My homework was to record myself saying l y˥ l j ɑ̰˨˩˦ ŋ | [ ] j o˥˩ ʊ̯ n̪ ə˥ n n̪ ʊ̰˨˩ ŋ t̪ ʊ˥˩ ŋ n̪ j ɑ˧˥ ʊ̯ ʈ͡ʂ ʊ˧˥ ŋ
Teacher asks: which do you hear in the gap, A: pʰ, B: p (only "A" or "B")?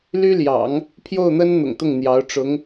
A